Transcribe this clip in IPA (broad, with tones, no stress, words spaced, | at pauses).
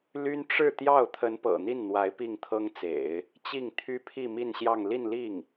ly˥n ʈ͡ʂɻ̩˥˧t̪jɑ˥˩ʊ̯ t̪ʰə˧˥npɤ̰˨˩ n̪i˥˩nn̪wa˧˥ɪ̯ pi˥˩ŋt̪ʰɤ˥ŋt͡sḛ˨˩˦ɪ̯ | t͡ɕi˥˩ŋt̪ʰy˥pʰi˥˧ mi˥˧nɕjɑ˥˧ŋ li˥˧nli˥˩ŋ